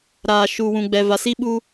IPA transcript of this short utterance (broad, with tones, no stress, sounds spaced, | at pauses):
ɾ aː˨ ʃ uː˨ w ũ˨ ɡ͡b ɛ˨ v a˨ s i˦ ɓ u˦